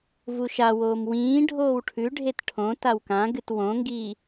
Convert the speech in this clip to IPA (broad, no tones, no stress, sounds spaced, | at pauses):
v u ʃ a w oː m w ĩː ɖʱ oː w ʈʰ ʉ ɖʱ e t ʈʰ õ t a w k ã ɡ ɨ t w õ ŋ ɡ iː